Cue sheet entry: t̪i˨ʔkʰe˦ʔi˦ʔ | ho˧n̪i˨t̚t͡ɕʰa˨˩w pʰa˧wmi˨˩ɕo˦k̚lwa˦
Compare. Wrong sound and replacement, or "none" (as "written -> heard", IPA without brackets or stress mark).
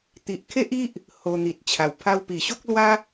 m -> p